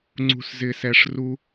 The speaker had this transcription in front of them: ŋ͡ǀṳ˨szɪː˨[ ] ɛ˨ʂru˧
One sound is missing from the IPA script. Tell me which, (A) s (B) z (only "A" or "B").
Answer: A